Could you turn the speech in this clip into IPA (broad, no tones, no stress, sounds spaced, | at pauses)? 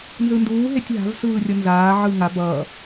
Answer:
n z ɯ n d uː ɦ e tʲ ɦ a̤ v s ɯː rʲ ʌ n z aː ʕ ɯ ŋ a b ʌ